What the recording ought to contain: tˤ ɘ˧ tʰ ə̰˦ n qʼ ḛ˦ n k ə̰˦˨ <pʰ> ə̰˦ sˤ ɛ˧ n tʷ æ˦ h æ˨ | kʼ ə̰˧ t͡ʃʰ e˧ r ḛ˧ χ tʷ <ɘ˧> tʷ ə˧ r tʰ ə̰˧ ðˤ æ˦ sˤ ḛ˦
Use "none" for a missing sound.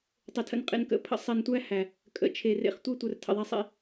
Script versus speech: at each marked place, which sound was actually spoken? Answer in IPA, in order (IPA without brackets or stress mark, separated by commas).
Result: pʰ, ɘ˦